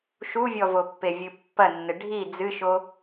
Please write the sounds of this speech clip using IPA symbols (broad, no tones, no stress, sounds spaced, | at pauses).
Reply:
ʃ u vʲ ɔ v o pː e vʲ ɨ pː ɐ nː ɘ ɖʱ i d͡z ɨ ʃ o